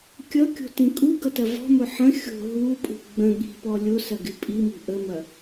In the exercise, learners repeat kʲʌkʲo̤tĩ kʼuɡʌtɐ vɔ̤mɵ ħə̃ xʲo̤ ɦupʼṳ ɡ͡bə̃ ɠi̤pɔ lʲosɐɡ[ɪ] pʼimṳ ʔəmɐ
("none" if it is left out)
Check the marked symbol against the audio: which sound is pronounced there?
ɪ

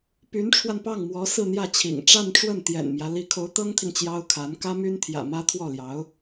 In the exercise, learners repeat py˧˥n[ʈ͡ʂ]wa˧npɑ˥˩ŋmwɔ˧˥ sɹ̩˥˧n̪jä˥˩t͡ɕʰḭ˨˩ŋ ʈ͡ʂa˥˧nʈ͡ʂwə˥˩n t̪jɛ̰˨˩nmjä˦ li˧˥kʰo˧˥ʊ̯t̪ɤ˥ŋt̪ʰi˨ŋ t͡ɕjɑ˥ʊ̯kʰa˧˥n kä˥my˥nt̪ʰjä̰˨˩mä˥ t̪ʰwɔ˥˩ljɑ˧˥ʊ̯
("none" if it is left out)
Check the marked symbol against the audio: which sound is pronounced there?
ʈ͡ʂʰ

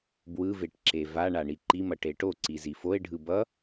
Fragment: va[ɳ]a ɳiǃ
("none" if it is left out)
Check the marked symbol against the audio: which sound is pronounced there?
ɳ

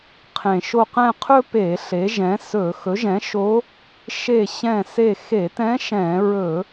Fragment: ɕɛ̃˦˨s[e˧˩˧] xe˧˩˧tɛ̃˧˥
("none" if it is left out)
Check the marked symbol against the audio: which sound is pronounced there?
e˦˨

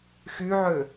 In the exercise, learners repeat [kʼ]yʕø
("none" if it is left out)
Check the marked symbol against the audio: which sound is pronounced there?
x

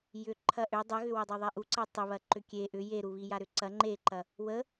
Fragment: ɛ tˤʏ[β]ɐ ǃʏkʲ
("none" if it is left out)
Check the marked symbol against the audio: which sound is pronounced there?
β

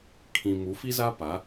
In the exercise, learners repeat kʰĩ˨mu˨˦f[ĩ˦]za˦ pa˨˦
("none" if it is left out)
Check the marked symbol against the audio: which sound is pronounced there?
i˦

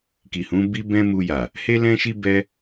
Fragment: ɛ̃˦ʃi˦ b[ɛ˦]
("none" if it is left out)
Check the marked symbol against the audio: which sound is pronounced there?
ɛ˦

